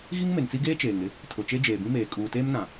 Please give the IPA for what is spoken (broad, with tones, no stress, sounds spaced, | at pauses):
ɣ i˦ ŋ m e˨ n t͡s i˦ ɡ eː˦ t͡ʃ eː˨ ŋ ɾ ɪ˦ | tʰ ʊ˨ t͡ʃ e˦ d͡ʒ eː˨ b ĩ˦ m eː˨ kʼ uː˨ t eː˦ m n ã˨